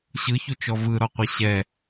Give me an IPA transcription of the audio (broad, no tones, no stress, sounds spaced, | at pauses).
ɕ ɯ ç u t͡ʃ ɔ v ɯ ɾ ɔ qʷ e ɕ ɛ